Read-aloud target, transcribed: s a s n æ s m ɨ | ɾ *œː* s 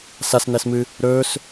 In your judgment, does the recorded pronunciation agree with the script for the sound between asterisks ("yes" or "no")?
no